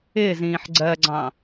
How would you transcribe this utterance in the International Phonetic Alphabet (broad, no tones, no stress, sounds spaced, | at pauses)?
ɪː z ĩː ħ ɡ͡ǀ ɜ ɡ͡ǀ ɑ̃